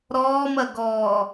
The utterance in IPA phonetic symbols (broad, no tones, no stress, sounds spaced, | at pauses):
ɾ ɔː m ɐ ɡ ɔː